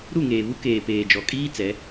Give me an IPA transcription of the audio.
ɾ u˦˨ ŋ eː˨ β u˦ k eː˨ p eː˨ d͡ʒ ɔ˨ kʼ iː˦ t͡s ɛ˨˦

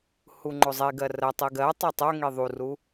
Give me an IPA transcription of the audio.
h u ŋ͡ǃ o zˤ i ɡ ɜ r ɜ tˤ i ɡ ɜ tˤ o tˤ o ŋ i ðˤ u r u

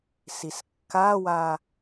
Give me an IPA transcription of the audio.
s i s kː a w a

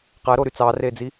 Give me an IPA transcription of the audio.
q æ ɾ o ɾ y t͡s ɑː r eː d͡z i

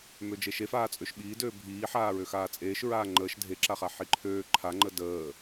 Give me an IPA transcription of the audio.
m ø d͡ʒ e ʃ e f aː t͡sʼ ø ʃ ɓ iː d øː bʱ iː ħ aː ɹ ø x aː t͡sʼ eː ʃ ɹ aː ŋ͡ǃ əː ʃ dʱ e ǁ a χ a ħ i ǃʰ øː ǃʰ a ŋ͡ǃ ə d əː

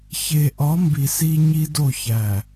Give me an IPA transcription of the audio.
ç e˨ ʔ ɒ˨˦ m b i˨ s i˦ ɲ i˦ d o˦˨ ç æ˨

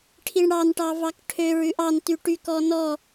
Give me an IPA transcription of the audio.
ʈʰ i ɳ ɽ ɑ n ʈ ɑ v ɑ k ʈʰ ø ɹ ʉ ʔ ɑ n t y ʈ y k ɔ n ɔ

